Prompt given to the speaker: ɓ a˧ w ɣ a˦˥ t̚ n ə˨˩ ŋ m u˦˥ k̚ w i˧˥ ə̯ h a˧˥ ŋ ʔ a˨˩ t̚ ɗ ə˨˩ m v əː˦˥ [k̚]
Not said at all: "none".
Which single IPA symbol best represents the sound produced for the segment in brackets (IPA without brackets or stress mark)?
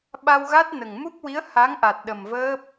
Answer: p̚